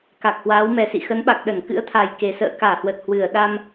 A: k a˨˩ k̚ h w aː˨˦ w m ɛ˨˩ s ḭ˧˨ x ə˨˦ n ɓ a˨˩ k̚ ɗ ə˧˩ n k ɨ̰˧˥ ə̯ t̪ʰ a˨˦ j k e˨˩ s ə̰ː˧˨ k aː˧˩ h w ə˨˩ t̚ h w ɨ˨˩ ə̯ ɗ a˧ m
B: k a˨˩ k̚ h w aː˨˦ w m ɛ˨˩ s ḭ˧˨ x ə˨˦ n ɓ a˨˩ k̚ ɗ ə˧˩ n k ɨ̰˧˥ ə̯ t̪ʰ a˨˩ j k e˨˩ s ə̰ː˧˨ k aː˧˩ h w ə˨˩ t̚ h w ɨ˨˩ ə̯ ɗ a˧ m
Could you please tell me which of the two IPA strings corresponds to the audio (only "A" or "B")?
B